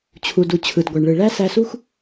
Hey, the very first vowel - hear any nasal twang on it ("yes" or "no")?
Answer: no